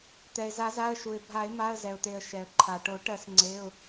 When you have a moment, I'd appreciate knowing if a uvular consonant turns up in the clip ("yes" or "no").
no